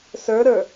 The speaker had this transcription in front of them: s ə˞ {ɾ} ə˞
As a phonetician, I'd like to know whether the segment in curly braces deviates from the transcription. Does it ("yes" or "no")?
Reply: no